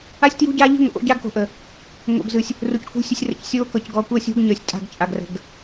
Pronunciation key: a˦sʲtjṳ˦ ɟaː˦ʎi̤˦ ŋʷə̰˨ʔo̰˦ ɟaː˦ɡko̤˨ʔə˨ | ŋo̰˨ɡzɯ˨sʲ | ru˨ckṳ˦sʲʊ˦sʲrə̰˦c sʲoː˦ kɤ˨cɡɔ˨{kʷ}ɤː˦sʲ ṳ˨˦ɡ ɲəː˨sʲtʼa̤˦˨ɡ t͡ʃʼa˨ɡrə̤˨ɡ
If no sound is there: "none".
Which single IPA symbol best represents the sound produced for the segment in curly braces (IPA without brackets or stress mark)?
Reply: kʷ